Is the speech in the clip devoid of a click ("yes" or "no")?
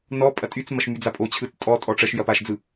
yes